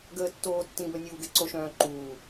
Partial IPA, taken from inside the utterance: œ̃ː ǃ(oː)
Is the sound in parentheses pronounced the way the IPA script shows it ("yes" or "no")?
no